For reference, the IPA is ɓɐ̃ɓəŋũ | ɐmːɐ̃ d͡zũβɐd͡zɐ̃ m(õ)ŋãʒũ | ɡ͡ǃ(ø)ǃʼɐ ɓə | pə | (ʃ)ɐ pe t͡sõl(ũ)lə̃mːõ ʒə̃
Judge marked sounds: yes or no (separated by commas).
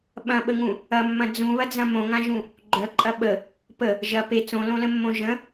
yes, no, no, no